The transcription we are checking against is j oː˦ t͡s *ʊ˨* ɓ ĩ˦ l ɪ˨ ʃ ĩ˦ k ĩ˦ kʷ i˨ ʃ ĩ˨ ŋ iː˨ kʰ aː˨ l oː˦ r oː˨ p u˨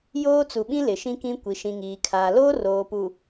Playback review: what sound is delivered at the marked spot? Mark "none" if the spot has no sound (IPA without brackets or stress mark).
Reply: u˨